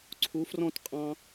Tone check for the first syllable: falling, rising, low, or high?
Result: rising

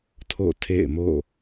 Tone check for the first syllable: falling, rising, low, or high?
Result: falling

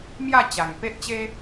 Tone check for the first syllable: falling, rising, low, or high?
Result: falling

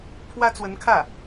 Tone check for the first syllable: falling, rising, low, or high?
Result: high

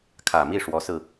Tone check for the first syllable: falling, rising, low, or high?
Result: low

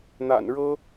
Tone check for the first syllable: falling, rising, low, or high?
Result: low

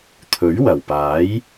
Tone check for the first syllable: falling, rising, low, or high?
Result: rising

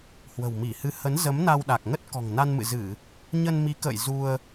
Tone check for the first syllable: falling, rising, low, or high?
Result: low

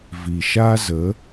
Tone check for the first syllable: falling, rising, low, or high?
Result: low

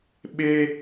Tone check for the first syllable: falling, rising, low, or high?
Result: high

